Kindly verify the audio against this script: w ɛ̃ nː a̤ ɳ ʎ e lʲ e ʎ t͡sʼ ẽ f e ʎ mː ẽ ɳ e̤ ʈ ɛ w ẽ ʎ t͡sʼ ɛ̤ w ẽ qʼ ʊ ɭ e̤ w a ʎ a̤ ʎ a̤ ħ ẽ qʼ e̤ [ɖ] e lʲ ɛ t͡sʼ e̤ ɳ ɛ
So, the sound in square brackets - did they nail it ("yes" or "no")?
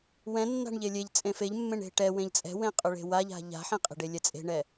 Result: yes